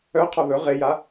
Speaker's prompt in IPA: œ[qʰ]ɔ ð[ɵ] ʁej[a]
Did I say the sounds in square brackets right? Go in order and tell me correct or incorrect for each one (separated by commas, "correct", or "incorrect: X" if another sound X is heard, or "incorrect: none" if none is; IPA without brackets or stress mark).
correct, correct, correct